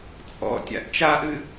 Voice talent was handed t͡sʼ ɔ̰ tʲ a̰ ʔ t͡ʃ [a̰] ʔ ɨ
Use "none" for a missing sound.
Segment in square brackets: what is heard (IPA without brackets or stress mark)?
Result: a